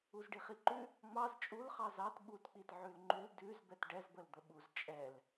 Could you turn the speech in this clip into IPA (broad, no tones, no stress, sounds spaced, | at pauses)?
u z ɖ i χ i ǃ ʉ | ŋ͡m ɑ z t͡ʃʼ u l χ ɑ z ɑ t ɓ u t k͡p i t ʕ ʉ l ŋ͡ǃ ʉ l d ʉ z b ɛ t ɖ ɛ z b ə l d̪ ə ɓ u z t͡ʃʼ ɛ l